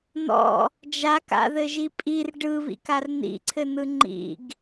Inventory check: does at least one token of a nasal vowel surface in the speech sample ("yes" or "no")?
no